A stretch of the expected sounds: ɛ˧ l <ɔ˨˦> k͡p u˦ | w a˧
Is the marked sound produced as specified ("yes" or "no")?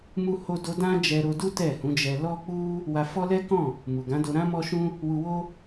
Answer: no